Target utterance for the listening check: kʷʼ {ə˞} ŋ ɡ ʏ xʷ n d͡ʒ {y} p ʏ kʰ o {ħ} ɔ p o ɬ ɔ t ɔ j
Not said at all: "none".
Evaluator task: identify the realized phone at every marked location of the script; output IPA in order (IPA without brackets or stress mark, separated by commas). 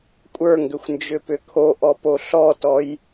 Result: ə˞, ʏ, ʔ